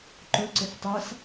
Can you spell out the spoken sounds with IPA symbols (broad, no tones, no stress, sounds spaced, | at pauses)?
ǃ ʊ ǀ ɪ f tˤ a s